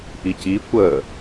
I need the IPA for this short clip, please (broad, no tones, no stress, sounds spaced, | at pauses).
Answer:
ʔ i c i kʷ ə